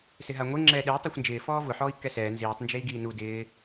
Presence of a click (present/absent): present